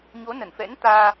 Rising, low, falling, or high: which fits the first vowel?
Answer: rising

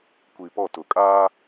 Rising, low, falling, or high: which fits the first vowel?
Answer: low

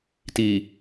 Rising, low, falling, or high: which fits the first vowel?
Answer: low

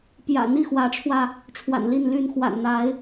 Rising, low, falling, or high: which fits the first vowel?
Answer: low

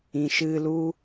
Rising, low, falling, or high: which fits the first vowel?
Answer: low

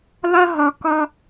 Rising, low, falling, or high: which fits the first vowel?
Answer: high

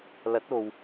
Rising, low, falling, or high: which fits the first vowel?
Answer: rising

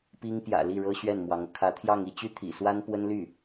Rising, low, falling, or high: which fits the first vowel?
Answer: high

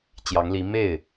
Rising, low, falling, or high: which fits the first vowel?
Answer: rising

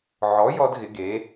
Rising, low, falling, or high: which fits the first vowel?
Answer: rising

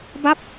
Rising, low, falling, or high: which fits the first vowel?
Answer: falling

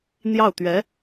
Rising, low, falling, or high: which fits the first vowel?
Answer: falling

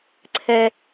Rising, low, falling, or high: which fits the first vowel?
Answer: low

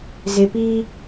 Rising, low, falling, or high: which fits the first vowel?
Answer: low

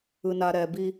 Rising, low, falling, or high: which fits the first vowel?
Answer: low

